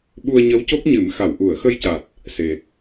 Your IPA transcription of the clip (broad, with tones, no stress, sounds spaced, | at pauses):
ɓ u˧ ə̯ ɲ ə˧˥ w c o˦˥ k̚ ɲ ɨ˨˩˦ m x a˨˩˨ w ʔ u˨˩˨ ə̯ x ə˧ j c a˨˩ t̚ | s e˨˩